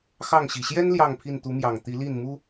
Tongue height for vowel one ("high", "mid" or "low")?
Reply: low